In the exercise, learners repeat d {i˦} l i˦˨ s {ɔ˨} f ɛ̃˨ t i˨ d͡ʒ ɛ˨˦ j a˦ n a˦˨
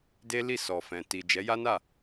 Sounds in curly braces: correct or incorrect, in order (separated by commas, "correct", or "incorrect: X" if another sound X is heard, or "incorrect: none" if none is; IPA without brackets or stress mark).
incorrect: e˦, correct